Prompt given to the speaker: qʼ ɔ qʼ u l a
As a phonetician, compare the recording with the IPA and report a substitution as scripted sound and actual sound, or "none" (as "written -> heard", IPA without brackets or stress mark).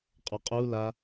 none